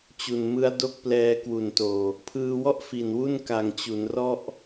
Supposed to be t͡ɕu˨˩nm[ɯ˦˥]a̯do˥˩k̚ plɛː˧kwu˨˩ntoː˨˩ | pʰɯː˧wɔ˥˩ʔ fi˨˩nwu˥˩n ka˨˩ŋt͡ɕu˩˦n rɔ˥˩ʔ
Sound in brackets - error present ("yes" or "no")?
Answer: no